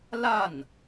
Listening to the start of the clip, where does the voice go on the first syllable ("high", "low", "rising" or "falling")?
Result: falling